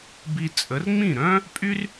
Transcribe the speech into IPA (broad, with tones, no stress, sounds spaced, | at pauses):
b i˧ t͡sʼ ə˩˥ r ŋ͡m ĩ˥˩ ɾ œ̃˥ | pʼ y˥ r